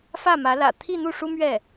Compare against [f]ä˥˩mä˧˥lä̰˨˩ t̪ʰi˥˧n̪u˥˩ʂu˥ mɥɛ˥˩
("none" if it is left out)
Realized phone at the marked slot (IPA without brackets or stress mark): f